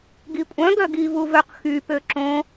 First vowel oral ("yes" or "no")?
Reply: yes